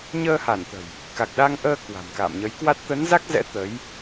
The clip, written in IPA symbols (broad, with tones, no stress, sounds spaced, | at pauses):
ɲ əː˧ h a˧˩ n t̪ ə̤˨˩ j | k a˨˩ k̚ ɗ a˧ ŋ ʔ əː˧ k w a̤˨˩ m k a̰ː˧˨ m ɲ ə˨˦ j k w a˦˥ t̚ t̪ ə˨˦ n z a˦˥ k̚ z ɛ̰˧˥ t̪ ə˨˦ j